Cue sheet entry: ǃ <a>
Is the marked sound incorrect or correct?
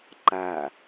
correct